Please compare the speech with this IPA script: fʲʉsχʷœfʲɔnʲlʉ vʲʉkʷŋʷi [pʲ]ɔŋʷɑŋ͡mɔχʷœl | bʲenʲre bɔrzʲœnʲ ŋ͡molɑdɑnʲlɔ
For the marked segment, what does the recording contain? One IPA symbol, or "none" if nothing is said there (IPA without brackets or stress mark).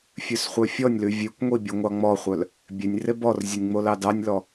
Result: bʲ